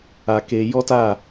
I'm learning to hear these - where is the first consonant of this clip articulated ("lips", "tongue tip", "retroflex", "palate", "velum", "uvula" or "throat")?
velum